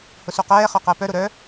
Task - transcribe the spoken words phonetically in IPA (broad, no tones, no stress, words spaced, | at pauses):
hʊsuqɛːχœ qəːpœɾʊ ɾœ